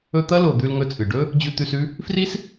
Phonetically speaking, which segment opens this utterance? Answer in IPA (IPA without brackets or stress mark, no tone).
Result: ɵ